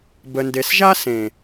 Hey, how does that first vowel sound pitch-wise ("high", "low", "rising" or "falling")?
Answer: low